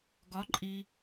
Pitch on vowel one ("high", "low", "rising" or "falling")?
rising